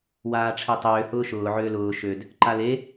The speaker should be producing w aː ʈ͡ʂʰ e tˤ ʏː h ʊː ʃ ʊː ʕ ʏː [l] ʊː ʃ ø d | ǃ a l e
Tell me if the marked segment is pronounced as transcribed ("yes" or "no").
yes